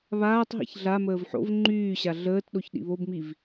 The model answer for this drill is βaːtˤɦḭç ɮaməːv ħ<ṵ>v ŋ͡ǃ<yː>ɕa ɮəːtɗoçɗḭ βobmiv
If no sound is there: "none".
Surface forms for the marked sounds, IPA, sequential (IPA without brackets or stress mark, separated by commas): o̰, yː